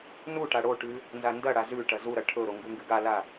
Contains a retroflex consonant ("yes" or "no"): yes